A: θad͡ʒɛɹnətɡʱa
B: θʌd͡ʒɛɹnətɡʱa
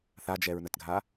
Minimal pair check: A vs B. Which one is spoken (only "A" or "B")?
A